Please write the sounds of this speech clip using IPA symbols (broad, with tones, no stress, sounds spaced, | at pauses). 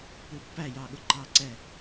p u˧˥ pː æ˥˩ j ɑ˨ ɠ ʊ˨ ǃ ɑ˥˩ ǀ ɛ˥˩